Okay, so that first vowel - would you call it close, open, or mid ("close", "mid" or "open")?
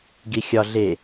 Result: close